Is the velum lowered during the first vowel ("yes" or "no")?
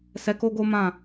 no